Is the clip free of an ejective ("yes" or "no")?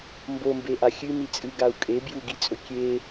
no